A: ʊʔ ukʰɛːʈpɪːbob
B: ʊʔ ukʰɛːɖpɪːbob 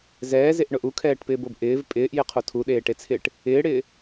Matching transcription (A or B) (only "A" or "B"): A